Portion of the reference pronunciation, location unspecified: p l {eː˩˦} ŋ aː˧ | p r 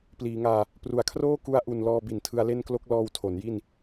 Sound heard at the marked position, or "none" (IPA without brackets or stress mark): iː˩˦